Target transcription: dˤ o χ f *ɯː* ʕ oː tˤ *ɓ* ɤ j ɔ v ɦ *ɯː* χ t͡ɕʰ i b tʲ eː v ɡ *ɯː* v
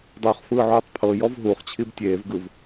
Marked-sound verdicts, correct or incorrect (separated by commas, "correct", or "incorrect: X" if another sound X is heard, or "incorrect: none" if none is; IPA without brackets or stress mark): correct, incorrect: pʰ, incorrect: uː, incorrect: ɯ